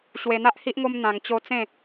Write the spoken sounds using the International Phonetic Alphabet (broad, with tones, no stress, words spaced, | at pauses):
ɕwe˧n̪a˦ʔ hi˦ʔŋo˦m n̪ã˧ŋ t͡ɕo˦ t͡sẽ˥˧